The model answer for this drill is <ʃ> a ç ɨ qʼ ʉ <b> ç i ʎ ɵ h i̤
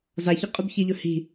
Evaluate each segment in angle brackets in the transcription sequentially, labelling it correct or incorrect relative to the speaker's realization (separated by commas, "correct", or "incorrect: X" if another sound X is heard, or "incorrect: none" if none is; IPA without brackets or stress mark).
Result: incorrect: z, correct